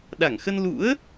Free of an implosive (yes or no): no